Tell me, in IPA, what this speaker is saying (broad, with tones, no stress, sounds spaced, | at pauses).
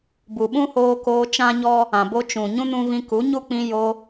b u˨ ɓ ũ˦ h oː˧ k oː˧ t͡ʃ ã˦ ɲ ɔ˦ | ã˨ b o˧ t͡ʃ ũ˨ ɲ ũ˦ n ũ˧ v ĩ˧ k u˨˦ ɲ u˦ k͡p ĩ˧ j o˧